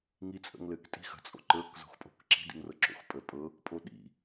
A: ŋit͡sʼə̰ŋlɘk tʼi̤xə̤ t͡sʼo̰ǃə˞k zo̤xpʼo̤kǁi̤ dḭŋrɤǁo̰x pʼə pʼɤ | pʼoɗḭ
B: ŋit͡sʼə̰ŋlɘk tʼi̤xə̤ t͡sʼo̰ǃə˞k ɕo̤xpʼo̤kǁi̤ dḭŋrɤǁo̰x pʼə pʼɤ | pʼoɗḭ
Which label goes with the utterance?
A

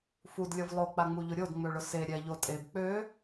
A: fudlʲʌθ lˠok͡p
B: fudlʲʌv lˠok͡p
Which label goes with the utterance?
B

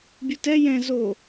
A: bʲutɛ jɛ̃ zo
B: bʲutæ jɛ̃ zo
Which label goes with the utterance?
A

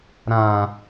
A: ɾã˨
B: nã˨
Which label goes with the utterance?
A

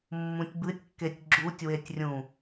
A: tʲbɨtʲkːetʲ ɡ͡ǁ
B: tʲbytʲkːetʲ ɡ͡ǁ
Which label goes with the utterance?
A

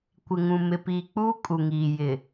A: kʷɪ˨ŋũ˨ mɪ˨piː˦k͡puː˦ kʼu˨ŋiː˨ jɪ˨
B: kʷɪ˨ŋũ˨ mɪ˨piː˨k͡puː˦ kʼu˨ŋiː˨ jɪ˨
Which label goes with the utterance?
B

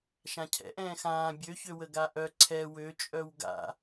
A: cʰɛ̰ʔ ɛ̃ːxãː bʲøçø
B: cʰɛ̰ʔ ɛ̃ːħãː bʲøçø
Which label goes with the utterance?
A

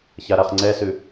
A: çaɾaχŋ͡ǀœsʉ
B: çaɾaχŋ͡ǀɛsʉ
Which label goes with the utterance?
B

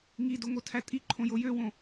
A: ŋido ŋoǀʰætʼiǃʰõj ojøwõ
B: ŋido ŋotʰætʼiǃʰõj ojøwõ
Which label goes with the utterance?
B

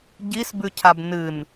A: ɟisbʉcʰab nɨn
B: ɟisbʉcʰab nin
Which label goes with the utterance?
A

